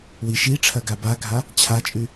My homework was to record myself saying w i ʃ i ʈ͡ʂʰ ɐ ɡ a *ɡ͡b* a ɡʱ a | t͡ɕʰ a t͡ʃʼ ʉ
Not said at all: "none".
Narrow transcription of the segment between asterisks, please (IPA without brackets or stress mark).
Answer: b